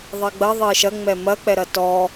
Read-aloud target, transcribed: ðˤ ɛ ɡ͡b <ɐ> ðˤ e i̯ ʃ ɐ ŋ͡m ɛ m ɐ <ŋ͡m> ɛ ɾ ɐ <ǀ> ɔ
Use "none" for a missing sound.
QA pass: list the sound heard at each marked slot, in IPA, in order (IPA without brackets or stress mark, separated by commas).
ɐ, k͡p, t